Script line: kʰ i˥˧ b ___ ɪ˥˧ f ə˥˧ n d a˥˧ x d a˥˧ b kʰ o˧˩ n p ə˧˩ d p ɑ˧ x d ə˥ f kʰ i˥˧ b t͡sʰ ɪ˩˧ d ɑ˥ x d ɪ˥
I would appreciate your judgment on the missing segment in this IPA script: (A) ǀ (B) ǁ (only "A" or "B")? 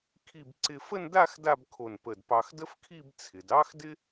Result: A